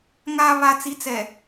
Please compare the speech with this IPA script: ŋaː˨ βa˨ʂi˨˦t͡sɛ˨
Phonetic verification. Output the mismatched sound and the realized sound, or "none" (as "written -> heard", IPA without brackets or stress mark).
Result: ʂ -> t͡s